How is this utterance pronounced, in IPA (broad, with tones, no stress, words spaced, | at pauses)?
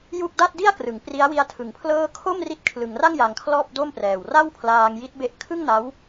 ju˥˩k̚ da˥˩t̚di˥˩a̯krɯ˩˦ŋ pri˦˥a̯wi˦˥a̯ tʰɯ˨˩ŋpʰlɤː˥˩ kʰo˥˩m ri˦˥t̚kʰlɯ˩˦ŋra˥˩ŋ ja˧ŋkʰlɔː˥˩p̚do˥˩mprɛː˨˩w ra˥˩wpʰlaː˧ŋji˦˥t̚be˦˥ʔ kʰɯ˥˩ŋna˦˥w